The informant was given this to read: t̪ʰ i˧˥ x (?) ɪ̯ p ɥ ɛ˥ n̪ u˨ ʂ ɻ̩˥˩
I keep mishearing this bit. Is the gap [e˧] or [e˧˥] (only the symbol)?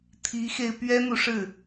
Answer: e˧